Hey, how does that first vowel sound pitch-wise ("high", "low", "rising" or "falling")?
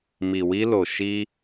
low